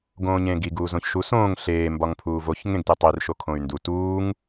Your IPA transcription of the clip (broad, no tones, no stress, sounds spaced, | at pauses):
ɡ õː ɲ ẽː ɡ i ɡ uː z õ ç ʃ u s õː ŋ ɬ eː m b ɒ ŋ pʰ uː v o ç ŋ ẽ ɡ t e tˤ i r ʃ o kʰ õ y̯ n d u t uː ŋ